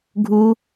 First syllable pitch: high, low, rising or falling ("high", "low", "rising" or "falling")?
high